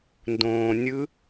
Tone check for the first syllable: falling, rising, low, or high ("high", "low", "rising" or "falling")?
low